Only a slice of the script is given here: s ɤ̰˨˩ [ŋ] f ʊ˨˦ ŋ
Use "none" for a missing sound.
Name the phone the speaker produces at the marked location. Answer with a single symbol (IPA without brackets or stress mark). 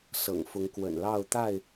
ŋ